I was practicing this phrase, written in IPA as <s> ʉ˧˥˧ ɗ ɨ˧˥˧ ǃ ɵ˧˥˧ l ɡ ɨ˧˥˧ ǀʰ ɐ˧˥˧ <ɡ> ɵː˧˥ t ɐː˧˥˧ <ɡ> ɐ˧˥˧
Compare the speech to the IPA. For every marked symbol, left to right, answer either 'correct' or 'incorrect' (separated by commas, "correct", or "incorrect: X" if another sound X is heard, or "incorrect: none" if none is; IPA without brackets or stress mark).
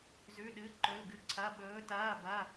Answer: incorrect: z, incorrect: ɓ, incorrect: b